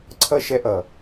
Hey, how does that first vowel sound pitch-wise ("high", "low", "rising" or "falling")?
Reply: high